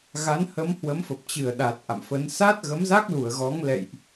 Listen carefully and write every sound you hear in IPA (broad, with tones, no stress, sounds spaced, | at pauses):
ɣ a˨˦ n h ə˨˦ m h w ə˨˦ m f ə˨˩ p̚ t͡ɕ ɨ˧˩ ə̯ ɗ a˨˩ t̚ ʔ a̰˧˨ m f ə˨˦ n s aː˦˥ t̚ ɣ ə˨˦ m z a˦˥ k̚ l u˧˩ ə̯ ɣ ɔ˨˦ ŋ l ɛ̰˧˨ j ʔ